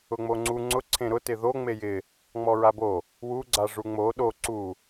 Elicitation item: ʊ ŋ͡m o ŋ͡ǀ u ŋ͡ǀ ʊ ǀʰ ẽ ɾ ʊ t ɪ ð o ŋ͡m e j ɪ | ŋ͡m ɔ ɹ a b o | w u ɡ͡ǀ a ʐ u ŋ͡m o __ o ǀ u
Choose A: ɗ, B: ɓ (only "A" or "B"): A